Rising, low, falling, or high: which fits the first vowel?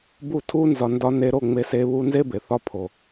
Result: falling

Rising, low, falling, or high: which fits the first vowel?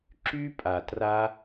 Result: high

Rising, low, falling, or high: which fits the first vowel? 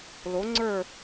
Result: rising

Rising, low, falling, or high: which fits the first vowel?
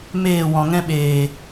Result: falling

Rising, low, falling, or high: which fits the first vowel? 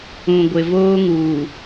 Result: low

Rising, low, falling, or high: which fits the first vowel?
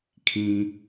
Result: low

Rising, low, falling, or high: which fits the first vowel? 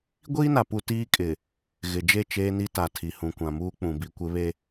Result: high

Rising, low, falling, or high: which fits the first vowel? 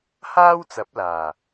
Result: high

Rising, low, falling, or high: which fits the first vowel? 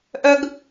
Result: high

